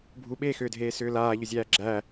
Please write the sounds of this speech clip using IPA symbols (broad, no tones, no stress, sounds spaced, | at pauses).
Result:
bʱ u ɓ eː x ʏː dʱ eː s ʏː l aː ʎ ʏ zʲ æː ɡ͡ǁ æ